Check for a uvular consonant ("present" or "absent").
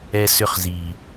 present